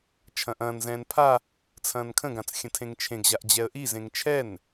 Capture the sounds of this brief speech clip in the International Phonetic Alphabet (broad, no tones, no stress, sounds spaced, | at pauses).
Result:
t͡ʃʰ ɐ̃ ʔ ɐ̃ː n z ɛ̃ː n pʰ a | t͡sʰ ɐ̃ː n kʰ ə̃ ɡ ã t͡s xʲ ə̃ tʰ ẽ ŋ t͡ʃʰ ẽ ɡ ʑ a ʔ d͡ʑ ɛ ə̯ ʔ i z ẽ ŋ t͡ʃʰ ɛ n